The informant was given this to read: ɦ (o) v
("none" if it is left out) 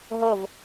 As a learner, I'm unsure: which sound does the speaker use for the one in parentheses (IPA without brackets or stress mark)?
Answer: o